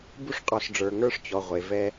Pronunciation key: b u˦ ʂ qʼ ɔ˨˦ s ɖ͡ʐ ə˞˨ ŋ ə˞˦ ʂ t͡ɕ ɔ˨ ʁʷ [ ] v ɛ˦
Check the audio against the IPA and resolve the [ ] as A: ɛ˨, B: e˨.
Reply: B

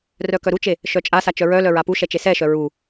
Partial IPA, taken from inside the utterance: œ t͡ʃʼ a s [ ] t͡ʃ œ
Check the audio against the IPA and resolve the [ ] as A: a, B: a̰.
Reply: A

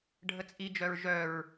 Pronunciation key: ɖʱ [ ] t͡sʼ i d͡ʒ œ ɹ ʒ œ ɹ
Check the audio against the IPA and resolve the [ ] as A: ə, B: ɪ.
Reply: A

